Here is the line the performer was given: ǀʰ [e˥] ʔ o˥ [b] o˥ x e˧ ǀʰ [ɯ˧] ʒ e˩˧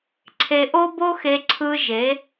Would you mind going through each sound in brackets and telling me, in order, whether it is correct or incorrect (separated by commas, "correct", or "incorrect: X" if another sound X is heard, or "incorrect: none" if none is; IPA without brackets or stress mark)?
incorrect: e˧, correct, correct